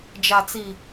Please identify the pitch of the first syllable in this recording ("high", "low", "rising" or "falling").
low